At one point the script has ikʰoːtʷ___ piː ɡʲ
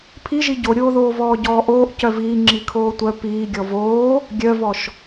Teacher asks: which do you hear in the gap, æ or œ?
œ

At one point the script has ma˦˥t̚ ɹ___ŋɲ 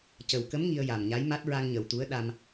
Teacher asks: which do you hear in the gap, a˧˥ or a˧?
a˧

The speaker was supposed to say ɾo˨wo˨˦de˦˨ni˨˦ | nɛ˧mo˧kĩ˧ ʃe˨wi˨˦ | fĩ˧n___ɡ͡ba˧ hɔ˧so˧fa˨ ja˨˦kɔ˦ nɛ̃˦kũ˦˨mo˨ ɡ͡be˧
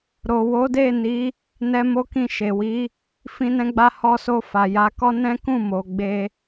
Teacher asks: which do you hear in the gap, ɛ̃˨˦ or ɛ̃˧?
ɛ̃˧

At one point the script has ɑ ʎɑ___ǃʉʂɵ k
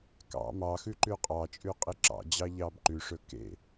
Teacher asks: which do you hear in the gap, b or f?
b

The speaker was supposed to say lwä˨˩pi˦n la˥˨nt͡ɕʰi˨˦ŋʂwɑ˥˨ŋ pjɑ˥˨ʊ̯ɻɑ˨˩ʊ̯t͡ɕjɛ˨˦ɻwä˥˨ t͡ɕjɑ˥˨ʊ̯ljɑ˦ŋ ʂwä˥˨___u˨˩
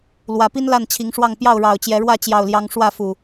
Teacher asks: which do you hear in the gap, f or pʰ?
f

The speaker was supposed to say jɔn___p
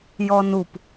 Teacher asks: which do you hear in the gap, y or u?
u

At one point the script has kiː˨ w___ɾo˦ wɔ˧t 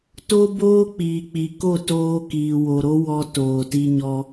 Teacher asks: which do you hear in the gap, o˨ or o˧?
o˨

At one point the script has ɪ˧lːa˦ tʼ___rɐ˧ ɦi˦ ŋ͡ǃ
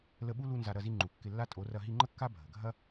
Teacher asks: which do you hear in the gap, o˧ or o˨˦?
o˨˦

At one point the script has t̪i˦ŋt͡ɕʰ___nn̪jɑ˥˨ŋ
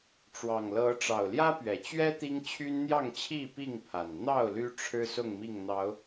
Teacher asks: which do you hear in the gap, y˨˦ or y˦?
y˦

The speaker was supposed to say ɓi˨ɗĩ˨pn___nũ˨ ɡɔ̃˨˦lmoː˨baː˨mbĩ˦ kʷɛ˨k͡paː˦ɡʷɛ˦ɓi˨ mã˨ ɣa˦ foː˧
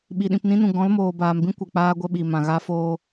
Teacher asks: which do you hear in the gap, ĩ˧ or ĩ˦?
ĩ˦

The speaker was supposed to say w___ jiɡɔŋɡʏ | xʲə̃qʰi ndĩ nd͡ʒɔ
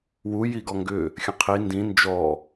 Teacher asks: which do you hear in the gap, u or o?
u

